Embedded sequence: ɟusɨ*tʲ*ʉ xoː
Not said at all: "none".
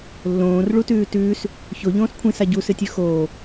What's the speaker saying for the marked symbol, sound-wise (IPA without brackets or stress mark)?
tʲ